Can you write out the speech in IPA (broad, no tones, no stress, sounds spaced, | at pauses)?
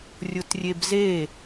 rʲ ʊ t rʲ e b z e